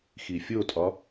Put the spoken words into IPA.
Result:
x i fʲ o tʼ ɒ

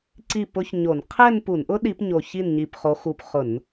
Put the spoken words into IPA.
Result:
ǀ i˥˩ p ʊ˦˥ ç ɲ o˧˩˧ n qʰ ɛ˥˧ n p u˧˩˧ n ʔ ʊ˦˥ ɗ i˨˦ p ɲ o˧˩ ç i˥˩ n ɲ i˧˩ p χ o˨˦ x u˧˩ p χ ʊ˧˩˧ n

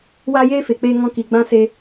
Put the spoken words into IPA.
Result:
w aː˦ j eː˦ f e˨ k͡p eː˧ ŋ ɔ̃˦ k i˧ ɡ͡b ã˦ s e˧

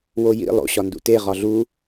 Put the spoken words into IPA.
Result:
w o j ḭ lˠ o̰ ɕ ɒ n d ṵ t e ʁ ɒ ɮ u

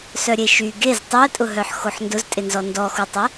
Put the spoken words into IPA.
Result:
s œ ɾʲ e ʃ y ɡ e z tˤ y ə̯ tʼ ʊ ɦ œ ħ x o ħ n d ʊ z tʼ ɪ n z ɔ n d ɔ x u tˤ ɛ

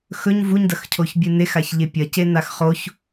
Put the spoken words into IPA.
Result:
x ɵ ɲ v u ɲ d ɐ x cʰ o ç bʲ ɨ n e x a ç ʎ e pʲ ɐ c e n a x χ o ç

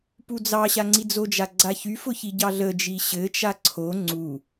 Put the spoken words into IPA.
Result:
p u d͡z ɑ ɕ a ŋ͡ǀ i d͡z o d͡ʒ a ɡ͡ǀ a ç y f ʊ ç i ɟ ɑ ɮ ə d͡ʒ i ɕ ɘ t͡ʃ a ǀʰ o ŋ͡ǀ u

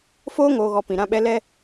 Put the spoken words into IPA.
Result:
f oː˦ ŋ oː˨ ɣ ɔ˨ p ĩ˨ ɾ ã˦ ɓ ɛ˦ l ɛ˦

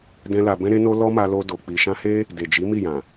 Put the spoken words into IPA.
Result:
d ɛ̃˦ l a˧ b ɛ̃˦ ɾ e˦ n o˦ l ɔ˦ m a˧ l o˧ d o˨ k͡p i˨ ʃ ã˧ h e˦ | d e˨ d͡ʒ i˨˦ m i˦˨ j ã˨

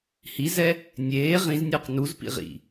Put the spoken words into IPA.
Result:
h i z ɛ | nʲ eː ʁ ĩ z nʲ əː q n u z p ḭ ʁ ḭ

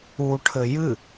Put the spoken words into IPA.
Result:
u ʈʰ ɘ j ɨ

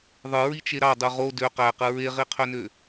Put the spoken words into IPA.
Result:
ðˤ ɯ ɹ i t͡ʃ e ɾ ɑ dˤ u ʁ o d ø q æ q ɯ ɹ e ʁ i qʰ ø n ø

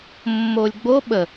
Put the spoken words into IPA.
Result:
mː o lʲ ɡ͡b o ɓ ə

